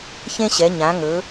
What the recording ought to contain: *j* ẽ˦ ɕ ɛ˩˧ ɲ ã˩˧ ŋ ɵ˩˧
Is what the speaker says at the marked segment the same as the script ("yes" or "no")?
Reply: no